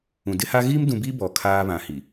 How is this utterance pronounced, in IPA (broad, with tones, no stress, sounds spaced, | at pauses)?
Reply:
ũ˨ d ɪ˦ h a˦ ɣ iː˦ m d ũ˨ b i˦ b ɔ˨ kʰ aː˦ β ã˨ h i˨